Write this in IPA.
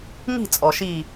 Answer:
ŋ i̤˥˨ t͡sʼ ɔ˩ ʃ i˧˩

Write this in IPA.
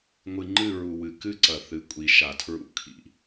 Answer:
ŋʷ ɨ˨ ŋ͡ǃ ɨ˦˨ ɹ u˨ w ɨ˨ k ɨ˦ ǀ ɐ˨ θ ɨ˨ kʷʼ i˨ ʃ a˨ tʰ ɹ ṵ˦ kʰ ḭ˨

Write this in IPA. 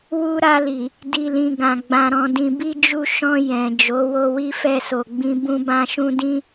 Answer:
w u˦ ɾ a˧ l i˨ | d i˨ l ĩ˨ ɡ ã˨ ɡ͡b ã˨ ɾ ɔ̃˨ d ĩ˨ b i˧ d͡ʒ u˧ ʃ ɔ̃˧ j ɛ̃˨ d͡ʒ o˨˦ w o˧ w i˦ f ɛ˧ s o˨ ɡ͡b ĩ˧ b ũ˧ b ã˧ ʃ ũ˧ d ĩ˦

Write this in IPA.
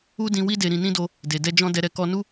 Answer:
u˦ d ĩ˧ w i˦ d e˧ ɾ ĩ˧ n ĩ˦ d o˧ | d e˨ d ɛ˧ d͡ʒ ɔ̃˧ d ɛ˧ ɾ ɛ˧ k ɔ˧ n u˦

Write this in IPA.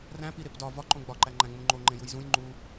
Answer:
r æ̃ p i ɾ e p d ɒ v ɒ ǃ õ ɡ͡b ɒ ǃ æ ŋ͡ǃ æ̃ ŋ͡m ũ ŋ͡ǃ o ŋ͡ǃ ẽ j u j z ũ j ŋ͡ǃ u

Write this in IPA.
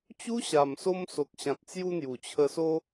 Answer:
t͡ɕ u˦ ɕ a˨˩ m s o˧ m s o˨ k̚ ɕ ã˨ t̚ t͡s j u˧ n̪ j u˨˩ t͡ɕʰ ə˧ s o˦

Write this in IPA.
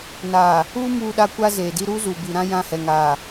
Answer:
n aː˨ | uː˦ m uː˨ ɗ a˨ kʷ a˦ z eː˨ d i˦ ɾ u˦ z u˨ b i˨ ɾ ã˦ j ã˦˨ h ɛ˨ ŋ aː˨

